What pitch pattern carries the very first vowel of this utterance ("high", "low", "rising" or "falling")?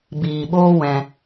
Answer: low